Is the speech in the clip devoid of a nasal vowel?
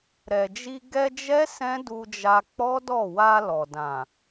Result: no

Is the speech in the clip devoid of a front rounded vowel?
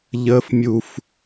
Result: yes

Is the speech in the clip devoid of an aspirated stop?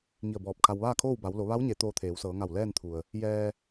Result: no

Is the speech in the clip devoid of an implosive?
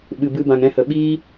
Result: no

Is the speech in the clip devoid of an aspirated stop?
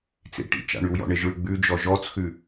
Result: yes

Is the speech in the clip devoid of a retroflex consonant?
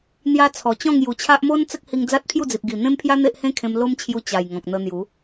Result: yes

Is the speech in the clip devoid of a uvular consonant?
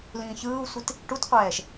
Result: no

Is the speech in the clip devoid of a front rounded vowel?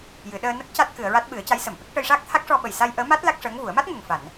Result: yes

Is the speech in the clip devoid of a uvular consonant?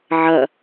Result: yes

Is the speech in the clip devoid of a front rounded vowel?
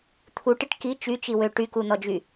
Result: no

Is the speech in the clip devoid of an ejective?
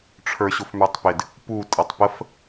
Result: no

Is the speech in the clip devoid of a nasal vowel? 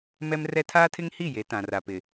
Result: no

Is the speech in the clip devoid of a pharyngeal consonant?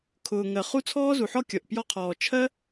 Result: no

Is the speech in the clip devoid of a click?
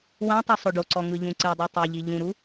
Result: no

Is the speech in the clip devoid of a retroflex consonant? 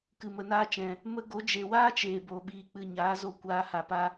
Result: yes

